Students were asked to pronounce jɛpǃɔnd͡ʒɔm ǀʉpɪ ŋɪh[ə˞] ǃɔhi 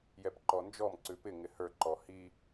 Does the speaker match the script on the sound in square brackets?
yes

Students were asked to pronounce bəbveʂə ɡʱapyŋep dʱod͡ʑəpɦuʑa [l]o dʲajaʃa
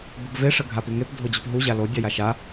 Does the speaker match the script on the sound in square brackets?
yes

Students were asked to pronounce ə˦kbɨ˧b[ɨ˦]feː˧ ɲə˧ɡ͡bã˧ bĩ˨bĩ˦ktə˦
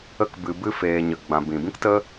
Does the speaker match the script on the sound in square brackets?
yes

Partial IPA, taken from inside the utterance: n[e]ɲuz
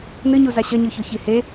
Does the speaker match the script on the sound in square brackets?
no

